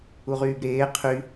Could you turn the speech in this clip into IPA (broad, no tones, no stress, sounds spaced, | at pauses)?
u ʁ yː b ɾ eː qʰ y